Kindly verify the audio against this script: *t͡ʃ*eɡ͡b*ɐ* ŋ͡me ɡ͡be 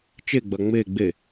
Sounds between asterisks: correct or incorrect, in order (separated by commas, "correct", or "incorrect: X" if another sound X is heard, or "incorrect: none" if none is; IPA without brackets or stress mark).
correct, correct